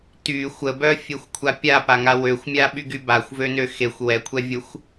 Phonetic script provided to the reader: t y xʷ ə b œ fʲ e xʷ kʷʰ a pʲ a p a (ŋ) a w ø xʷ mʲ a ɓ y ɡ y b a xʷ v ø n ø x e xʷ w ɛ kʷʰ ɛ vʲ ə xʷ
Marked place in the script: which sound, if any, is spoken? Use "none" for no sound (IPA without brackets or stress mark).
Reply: ŋ